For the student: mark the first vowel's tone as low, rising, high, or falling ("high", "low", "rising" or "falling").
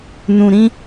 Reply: low